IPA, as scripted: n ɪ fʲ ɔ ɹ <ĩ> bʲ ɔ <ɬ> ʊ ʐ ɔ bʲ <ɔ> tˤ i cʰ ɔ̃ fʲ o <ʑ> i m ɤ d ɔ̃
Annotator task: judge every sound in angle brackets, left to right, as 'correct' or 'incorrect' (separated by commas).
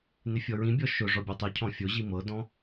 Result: correct, incorrect, correct, correct